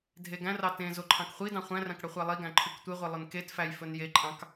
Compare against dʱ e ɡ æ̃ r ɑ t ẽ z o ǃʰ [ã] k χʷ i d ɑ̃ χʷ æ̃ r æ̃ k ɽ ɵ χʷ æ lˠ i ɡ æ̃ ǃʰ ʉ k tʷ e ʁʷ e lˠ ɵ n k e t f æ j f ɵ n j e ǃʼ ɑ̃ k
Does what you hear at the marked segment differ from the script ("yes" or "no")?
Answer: yes